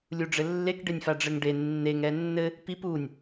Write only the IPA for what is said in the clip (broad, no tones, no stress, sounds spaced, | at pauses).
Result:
lʲ u ɖ͡ʐ ɘ lː e k ɖ e nʲ f a ɖ͡ʐ ɘ ŋ ɖ e nː e ŋ ɛ nː ɘ | p i p u nʲ